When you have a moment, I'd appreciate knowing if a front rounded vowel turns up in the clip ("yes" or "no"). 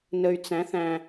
yes